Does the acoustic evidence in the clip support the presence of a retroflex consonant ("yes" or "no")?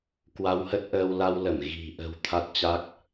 no